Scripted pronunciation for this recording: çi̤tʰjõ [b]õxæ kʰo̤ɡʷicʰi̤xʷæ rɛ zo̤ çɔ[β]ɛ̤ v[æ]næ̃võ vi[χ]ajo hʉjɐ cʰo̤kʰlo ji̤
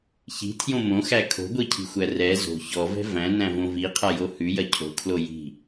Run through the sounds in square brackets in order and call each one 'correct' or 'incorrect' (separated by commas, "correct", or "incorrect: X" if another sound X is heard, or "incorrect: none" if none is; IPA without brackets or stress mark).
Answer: incorrect: m, incorrect: v, incorrect: æ̃, incorrect: qʰ